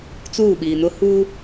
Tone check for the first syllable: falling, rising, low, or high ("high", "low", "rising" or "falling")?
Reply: falling